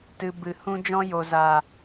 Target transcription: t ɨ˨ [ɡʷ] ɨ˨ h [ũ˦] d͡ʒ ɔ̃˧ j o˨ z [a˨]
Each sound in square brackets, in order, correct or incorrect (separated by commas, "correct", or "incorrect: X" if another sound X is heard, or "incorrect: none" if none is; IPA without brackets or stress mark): incorrect: b, correct, correct